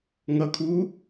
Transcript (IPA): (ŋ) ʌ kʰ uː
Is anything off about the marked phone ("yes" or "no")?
no